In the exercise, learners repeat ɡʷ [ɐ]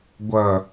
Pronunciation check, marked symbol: correct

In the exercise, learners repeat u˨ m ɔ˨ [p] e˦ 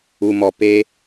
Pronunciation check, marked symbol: correct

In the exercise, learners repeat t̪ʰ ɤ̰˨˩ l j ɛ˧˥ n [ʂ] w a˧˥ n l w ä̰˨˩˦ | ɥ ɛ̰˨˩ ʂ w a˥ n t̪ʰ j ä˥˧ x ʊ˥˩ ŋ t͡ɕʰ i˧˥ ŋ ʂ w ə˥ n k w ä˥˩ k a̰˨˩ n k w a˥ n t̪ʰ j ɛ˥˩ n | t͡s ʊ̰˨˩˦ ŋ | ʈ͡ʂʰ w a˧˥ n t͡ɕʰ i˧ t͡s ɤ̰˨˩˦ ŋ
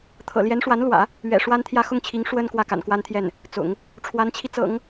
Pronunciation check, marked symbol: correct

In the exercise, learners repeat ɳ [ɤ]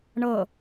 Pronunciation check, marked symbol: correct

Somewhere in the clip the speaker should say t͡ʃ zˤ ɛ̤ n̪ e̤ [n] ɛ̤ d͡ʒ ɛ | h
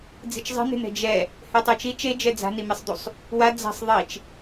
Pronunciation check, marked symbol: correct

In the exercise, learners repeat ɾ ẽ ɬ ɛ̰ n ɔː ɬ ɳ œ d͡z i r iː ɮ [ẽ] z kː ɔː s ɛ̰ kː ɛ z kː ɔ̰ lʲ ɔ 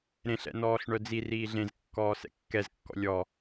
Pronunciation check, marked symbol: correct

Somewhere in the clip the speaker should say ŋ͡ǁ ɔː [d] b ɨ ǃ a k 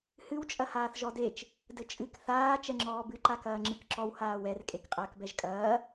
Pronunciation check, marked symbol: incorrect: none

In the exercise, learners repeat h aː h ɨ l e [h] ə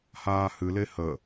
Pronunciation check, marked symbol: correct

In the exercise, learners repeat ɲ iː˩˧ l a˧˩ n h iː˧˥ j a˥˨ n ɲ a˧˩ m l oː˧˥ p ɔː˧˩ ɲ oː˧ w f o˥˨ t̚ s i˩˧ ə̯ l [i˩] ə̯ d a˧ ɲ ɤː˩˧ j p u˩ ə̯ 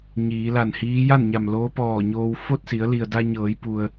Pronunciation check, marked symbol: correct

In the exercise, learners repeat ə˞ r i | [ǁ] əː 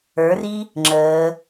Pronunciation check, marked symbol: incorrect: ŋ͡ǁ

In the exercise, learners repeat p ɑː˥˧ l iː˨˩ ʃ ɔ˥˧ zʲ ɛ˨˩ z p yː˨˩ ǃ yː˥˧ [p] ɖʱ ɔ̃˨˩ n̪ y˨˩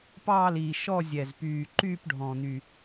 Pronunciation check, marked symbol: correct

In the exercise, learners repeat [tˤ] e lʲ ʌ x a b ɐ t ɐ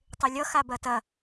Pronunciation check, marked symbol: correct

